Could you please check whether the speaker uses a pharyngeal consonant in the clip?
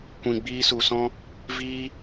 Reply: no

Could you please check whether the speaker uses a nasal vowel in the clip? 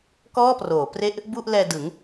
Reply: no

